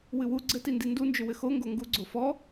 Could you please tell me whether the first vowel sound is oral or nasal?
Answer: oral